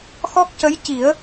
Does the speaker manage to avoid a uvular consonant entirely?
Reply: yes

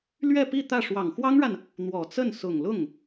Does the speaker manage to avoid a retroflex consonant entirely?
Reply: no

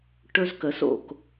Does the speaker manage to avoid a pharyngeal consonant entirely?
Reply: yes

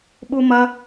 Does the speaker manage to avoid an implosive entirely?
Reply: no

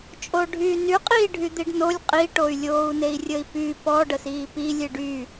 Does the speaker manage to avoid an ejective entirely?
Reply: no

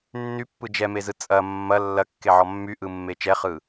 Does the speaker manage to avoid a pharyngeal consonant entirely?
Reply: no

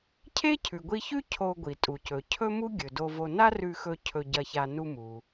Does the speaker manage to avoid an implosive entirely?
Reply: yes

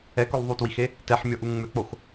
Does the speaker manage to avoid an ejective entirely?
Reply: yes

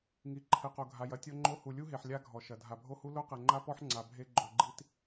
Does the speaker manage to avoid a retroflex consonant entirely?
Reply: yes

